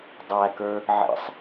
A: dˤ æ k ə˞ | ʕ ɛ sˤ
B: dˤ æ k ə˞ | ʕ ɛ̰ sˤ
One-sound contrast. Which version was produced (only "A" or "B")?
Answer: B